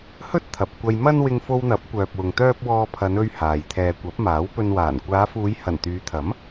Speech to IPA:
hɵ˥t̚t̪ʰɐ˨p̚ kʷɐ˧jmɐ˥n wɪ˧ŋfo˧wn̪ɐ˨˥p̚ kʷœː˨p̚wʊ˨ŋt̪œː˥p̚ wɔː˧pʰɐ˨˧nɵ˧ɥ haː˨j t̪ʰɛː˨kʷɐ˨˥p̚maː˨˥w pɵ˧nwaː˨˩n kʷaː˨˧fuː˨˧jhɐ˨˩n t̪yː˨˧t̪ʰɐ˨˥m

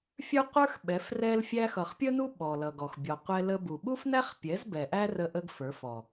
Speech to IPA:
fʲə˞˦qʷə˞˦x ɓɛ˨˦frɛ˦lfʲæ˦ xʌ˨χpʲə˦nu˦ ɓɔ˨lʌ˨ɡɔ˨x bʲɔ˨qʷɛ˧ lə˧bu˨ ɓu˦fnæ˦χpʲɛ˨˦z bɛ˨ʔæ˦ rə˦ʔə˦ɡfə˞˨˦f ɔ˨

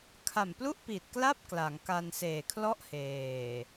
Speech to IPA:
kʰa˨˩mplu˥˩ʔpi˨˩t̚kla˥˩p̚ kla˩˦ŋka˧n seː˨˩kʰlɔ˥˩ʔ heː˨˩

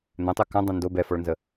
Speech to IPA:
n̪ɛ̃tˤø kãdˤɛ̃ ndo bɛfɔɭnzə

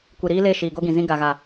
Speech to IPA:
kʷi˨ɾiː˦le˦˨ ʃiː˨ɡo˦ɡĩ˨zĩ˦ ɡa˨ɣa˨

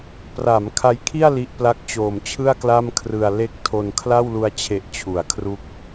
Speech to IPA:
pra˩˦m kʰa˦˥jkʰi˥˩a̯ li˥˩ʔ pla˦˥k̚t͡ɕoː˨˩mt͡ɕʰɯ˥˩a̯ kla˥˩mkʰrɯ˧a̯ le˦˥k̚ tʰo˧n kʰla˥˩wlu˧a̯t͡ɕʰe˨˩ʔt͡ɕʰu˩˦a̯ kʰru˦˥k̚

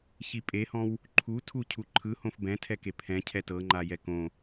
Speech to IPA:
çipʼehɔ̃w | ǃʰu tʰucʰuǃʰɯhõf bɛ̃tʰɛke pʰɛ̃ cʰɛtɤŋ͡ǃa jɛkõ

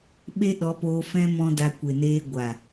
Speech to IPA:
ɓe˦ɗɔ˨˦poː˧ fɛ̃˦ mɔ̃˧ da˧ kʷe˨neː˧ ɡʷa˨

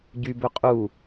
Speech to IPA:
ɟybø qʼu

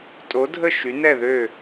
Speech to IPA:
tʼo˨˥dʱə˥˨ ʃy˨˥nɛ˥˨ðø˥˨

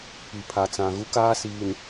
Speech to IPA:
pi˨pʰa˨t͡sã˨ ɣu˦kaː˦siː˨n

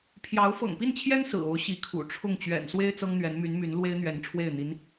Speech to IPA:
pʰjɑ˧˥ʊ̯ fɤ̰˨˩ŋpi˥˩nt͡ɕʰjɛ˥n sɹ̩˨˩o˧˥ʊ̯ ɕi˧˥kʰṵ˨˩ʈ͡ʂʰʊ˥˩ŋ t͡ɕɥɛ̰˨˩nswe˥ɪ̯ t͡sɤ˥ŋn̪ɥɛ˧˥nmy˧˥nmy˧˥n lwe˥ɪ̯n̪ɥɛ˧˥nʈ͡ʂʰwe˥˩ɪ̯n̪i˧˥n

